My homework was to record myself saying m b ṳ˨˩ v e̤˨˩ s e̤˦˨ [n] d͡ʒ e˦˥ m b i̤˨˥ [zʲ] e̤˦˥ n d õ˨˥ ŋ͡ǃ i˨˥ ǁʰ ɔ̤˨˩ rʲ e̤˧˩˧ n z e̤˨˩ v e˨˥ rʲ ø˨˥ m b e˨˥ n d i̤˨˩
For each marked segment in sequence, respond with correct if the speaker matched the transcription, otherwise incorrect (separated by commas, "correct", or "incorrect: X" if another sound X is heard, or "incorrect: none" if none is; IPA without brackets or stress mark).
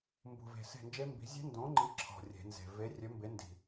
correct, correct